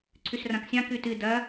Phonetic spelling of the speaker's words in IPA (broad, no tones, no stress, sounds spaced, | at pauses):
ǀʰ ʉ s r ã k sʲ ã k ʉ t ɨ d ɐ